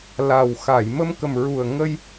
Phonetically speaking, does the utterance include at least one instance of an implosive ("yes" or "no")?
no